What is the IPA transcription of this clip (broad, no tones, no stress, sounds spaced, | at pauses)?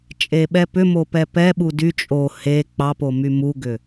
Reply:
t͡ʃʼ e ɓ ɛ p ʏ m o p ɛ p ɛ ɓ u d y t͡ʃʼ o h e k͡p ɑ p o m y m u ɡ ʏ